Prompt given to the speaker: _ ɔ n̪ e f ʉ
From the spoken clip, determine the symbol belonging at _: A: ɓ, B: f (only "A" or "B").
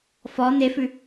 B